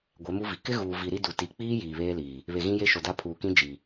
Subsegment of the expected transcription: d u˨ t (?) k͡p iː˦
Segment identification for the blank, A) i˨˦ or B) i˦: A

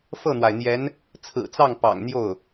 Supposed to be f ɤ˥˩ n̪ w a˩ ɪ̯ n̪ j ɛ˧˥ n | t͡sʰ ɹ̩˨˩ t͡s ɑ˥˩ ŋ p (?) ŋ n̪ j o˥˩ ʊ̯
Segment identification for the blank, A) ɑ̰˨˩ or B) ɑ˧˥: A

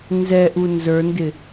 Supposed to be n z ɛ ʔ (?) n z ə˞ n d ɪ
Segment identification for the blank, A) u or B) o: A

